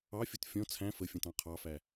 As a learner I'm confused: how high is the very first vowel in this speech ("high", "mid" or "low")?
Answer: low